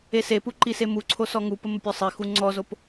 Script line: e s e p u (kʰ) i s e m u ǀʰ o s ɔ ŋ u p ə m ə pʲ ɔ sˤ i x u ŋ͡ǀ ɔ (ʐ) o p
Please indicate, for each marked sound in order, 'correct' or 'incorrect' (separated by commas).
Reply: incorrect, incorrect